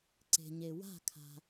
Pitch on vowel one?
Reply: low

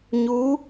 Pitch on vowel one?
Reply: rising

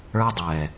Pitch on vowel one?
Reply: high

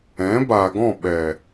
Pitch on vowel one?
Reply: rising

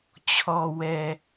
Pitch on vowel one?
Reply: low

